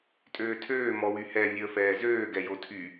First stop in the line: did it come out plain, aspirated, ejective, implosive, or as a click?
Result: ejective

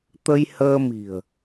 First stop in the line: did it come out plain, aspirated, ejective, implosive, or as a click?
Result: plain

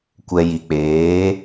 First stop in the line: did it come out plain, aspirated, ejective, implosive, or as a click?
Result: plain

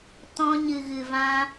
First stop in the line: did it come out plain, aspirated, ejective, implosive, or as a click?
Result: plain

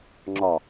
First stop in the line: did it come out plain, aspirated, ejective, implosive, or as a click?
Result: click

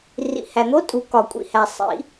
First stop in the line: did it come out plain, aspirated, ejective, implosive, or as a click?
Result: ejective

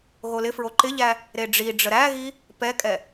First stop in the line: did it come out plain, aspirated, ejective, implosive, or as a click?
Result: click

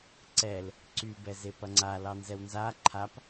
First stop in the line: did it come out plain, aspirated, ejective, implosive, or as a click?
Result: click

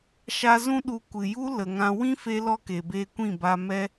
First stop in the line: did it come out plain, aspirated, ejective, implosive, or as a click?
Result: implosive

